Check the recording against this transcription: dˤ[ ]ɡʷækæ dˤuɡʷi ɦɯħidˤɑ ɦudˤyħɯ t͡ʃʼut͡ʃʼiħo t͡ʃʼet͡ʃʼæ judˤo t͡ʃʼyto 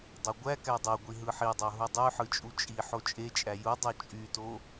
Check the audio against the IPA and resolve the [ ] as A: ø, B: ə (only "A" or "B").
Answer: A